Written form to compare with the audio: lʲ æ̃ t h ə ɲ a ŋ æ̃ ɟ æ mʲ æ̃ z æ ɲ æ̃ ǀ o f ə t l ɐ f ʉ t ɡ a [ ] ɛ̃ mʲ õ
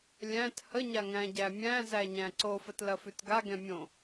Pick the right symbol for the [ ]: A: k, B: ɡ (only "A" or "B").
B